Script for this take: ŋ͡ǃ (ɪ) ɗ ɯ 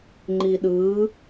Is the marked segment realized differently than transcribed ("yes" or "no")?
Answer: yes